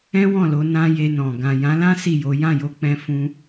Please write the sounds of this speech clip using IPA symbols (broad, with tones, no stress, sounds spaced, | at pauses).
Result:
ɛ̃˦ w ɔ̃˦˨ l o˧ n ã˦ j e˧ n ɔ̃˨ ɡ ã˨ j ã˨˦ l ã˦ s i˦˨ j o˨˦ j ã˦˨ j o˧ k͡p ɛ̃˧ f ũ˧